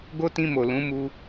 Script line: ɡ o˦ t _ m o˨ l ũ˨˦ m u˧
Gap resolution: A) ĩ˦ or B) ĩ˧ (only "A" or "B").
B